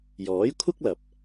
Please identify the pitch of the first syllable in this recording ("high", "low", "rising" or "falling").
rising